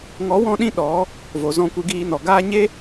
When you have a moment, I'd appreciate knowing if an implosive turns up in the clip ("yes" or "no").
yes